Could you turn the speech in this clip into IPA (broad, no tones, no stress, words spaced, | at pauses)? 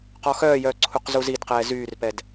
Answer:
qɔxœːjœː ǀʰuqzuzidqɛː zyːrpɛd